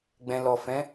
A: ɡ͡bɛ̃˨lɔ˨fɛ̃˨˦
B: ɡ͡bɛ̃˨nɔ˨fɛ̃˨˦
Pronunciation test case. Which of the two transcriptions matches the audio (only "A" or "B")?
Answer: A